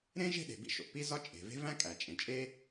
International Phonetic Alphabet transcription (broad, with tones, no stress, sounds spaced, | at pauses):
ɾ ẽ˥ ʒ e̤˥ ɗ e̤˩ b ḭ˥ ʃ o̰˩ p i˥ z ɒ˥ t͡ʃʼ e̤˩ v e̤˥ v æ̃˥ kʼ æ˩ t͡ʃʼ ẽ˩ t͡ʃʼ e˥